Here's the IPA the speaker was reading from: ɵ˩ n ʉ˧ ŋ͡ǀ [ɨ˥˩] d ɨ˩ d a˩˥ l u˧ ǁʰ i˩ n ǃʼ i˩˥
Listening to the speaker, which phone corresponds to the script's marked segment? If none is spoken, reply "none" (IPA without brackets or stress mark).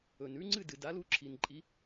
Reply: ɨ˥˩